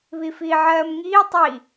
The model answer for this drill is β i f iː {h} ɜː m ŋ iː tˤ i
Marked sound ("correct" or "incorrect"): incorrect